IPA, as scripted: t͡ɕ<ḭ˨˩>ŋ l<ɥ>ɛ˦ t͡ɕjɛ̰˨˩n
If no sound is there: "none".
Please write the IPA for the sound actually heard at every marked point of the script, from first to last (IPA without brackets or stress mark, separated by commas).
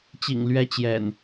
ḭ˨˩, ɥ